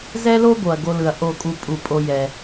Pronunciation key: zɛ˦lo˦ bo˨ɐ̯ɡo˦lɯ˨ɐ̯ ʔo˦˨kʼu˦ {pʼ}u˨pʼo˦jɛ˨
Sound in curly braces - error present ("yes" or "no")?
no